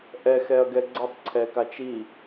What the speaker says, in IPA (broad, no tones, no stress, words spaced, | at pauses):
ʔɛxɛɐ̯ɡɛ ɡ͡ǀʌtˤǀʰɛkat͡ʃ i